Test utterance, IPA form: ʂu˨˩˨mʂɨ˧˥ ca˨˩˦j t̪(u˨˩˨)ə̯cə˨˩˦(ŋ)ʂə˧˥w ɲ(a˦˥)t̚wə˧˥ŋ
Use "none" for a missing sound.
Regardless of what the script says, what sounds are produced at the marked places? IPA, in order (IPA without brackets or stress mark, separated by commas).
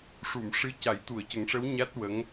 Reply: u˨˩˨, ŋ, a˦˥